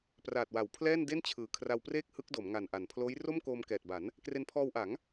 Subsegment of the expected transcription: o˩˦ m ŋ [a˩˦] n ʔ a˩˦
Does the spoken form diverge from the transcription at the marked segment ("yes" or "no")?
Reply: yes